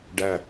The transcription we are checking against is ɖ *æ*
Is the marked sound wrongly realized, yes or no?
no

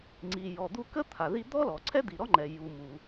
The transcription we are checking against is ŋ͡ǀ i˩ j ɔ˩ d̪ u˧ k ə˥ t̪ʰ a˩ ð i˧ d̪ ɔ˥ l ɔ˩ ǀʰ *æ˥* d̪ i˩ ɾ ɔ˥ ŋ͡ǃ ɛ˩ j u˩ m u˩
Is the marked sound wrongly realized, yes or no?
yes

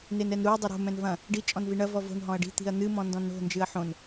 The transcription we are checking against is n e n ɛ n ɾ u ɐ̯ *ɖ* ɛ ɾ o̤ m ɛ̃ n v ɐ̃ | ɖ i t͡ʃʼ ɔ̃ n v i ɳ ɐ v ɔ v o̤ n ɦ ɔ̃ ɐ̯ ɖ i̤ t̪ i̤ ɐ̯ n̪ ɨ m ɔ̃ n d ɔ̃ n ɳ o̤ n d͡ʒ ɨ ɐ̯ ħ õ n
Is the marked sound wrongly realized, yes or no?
yes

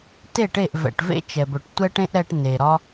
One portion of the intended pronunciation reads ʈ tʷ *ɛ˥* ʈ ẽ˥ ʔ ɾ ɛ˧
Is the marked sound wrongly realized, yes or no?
no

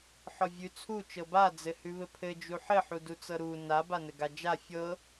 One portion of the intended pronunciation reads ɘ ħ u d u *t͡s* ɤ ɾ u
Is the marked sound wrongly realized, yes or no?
no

